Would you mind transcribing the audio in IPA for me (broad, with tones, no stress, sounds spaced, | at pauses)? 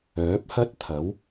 œː˨˥ p̚ h ɐ˥ t̚ t̪ʰ ɐ˨˥ w